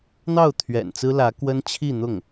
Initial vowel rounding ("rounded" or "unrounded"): unrounded